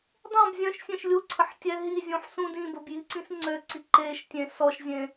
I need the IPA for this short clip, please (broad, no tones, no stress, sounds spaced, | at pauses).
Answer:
dˤ õ b zʲ œ̃ ʃ sʲ ẽ ʃ lʲ u ǀʰ ə ħ tʲ ɛ ɦ i zʲ ũ ħ s ũ d ĩ b ə b j i ǀ ĩ s ŋ͡ǀ ø ǀ i ǃ e ʃ tʲ ẽ s ɔ ʃ zʲ ẽ